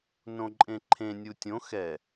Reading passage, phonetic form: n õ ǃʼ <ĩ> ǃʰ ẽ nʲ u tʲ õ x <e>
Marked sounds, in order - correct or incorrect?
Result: incorrect: ẽ, incorrect: ɛ

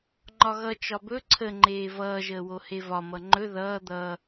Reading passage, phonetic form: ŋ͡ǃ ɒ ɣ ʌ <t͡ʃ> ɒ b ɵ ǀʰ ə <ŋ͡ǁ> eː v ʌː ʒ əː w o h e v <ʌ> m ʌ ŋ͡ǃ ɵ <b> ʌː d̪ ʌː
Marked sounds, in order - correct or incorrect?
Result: correct, incorrect: ŋ͡ǃ, incorrect: ɒ, incorrect: ð

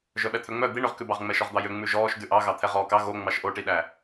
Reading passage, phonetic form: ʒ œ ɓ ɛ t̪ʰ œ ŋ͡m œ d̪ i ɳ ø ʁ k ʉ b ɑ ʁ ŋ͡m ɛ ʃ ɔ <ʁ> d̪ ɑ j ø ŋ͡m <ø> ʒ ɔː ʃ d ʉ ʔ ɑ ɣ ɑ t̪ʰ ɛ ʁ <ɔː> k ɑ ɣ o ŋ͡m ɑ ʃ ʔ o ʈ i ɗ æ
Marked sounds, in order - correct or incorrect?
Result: correct, incorrect: ʉ, correct

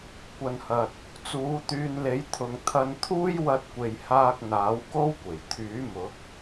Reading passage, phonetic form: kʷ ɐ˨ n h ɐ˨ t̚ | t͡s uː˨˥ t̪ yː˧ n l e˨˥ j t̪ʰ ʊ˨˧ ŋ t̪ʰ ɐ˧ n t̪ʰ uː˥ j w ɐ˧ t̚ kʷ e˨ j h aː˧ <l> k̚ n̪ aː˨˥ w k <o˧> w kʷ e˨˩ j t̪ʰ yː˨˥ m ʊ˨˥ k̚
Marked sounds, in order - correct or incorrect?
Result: incorrect: none, incorrect: o˥

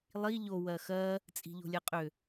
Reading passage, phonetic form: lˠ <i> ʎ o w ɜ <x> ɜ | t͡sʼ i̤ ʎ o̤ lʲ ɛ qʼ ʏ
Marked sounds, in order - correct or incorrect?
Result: correct, correct

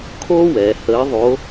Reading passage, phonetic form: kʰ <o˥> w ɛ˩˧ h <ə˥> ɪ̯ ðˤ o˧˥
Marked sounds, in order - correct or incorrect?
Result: correct, incorrect: ə˧˥

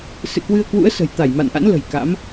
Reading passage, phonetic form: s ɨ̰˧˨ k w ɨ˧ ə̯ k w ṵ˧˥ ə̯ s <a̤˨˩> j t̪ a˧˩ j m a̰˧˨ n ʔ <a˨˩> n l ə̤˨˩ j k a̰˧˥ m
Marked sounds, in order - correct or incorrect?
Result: incorrect: ə̤˨˩, incorrect: a̰˧˥

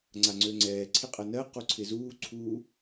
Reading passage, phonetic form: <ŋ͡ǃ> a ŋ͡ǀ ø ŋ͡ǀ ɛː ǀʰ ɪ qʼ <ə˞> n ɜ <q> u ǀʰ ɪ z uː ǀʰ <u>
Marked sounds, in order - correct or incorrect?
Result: incorrect: ŋ͡ǀ, incorrect: ɜ, correct, incorrect: uː

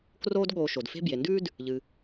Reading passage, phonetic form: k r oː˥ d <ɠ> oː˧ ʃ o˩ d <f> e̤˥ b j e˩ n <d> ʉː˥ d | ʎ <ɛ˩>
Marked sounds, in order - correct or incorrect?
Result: correct, correct, correct, incorrect: ɨ˩

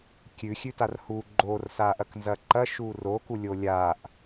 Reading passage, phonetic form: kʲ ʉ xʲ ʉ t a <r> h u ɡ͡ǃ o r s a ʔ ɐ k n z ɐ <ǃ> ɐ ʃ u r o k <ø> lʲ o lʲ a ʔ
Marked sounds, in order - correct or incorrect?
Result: correct, correct, incorrect: u

